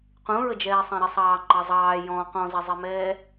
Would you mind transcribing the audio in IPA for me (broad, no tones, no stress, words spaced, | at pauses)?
qũɹəd͡ʒɛː sˤɛ̃ɾɪsˤɑː ŋ͡ǃɑzˤɑː jɔ̃ qɔ̃zɛzˤimɛː